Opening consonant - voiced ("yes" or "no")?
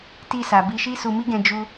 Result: no